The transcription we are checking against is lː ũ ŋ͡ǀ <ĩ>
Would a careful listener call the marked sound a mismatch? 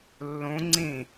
no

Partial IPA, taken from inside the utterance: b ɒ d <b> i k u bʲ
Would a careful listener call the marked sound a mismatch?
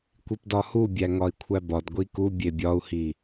yes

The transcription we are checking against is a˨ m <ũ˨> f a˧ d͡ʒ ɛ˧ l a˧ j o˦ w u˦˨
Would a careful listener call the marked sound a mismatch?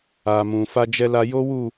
no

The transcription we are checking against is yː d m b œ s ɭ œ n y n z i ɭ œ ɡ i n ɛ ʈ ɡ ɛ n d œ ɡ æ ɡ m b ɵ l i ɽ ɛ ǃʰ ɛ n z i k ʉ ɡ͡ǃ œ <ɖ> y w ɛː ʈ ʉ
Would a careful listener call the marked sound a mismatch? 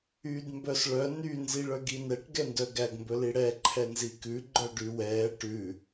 no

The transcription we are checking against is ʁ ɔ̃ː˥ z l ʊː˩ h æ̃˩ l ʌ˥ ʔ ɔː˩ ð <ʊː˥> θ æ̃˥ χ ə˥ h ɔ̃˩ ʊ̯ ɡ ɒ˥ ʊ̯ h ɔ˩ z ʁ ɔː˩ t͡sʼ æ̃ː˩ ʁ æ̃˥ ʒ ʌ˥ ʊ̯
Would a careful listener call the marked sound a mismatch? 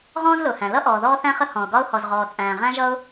yes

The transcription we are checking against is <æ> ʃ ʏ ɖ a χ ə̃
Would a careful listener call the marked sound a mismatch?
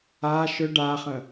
yes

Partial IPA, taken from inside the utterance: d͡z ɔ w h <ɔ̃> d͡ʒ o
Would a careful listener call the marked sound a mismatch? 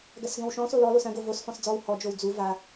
yes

